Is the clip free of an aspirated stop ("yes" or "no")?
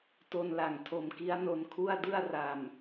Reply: no